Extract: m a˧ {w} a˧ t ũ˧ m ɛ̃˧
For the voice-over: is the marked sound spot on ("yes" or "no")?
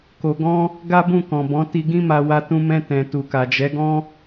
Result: yes